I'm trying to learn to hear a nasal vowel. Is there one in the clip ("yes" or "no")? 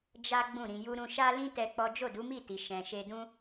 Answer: yes